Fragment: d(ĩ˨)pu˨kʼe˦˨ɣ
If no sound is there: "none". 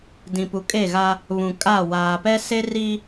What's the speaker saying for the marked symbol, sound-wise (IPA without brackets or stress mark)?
ĩ˨